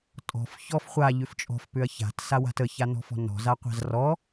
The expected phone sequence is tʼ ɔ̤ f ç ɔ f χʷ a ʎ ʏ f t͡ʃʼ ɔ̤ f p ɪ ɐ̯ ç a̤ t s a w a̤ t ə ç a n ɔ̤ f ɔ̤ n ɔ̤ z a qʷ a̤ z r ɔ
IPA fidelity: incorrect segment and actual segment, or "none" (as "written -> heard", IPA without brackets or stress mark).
ɪ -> ʏ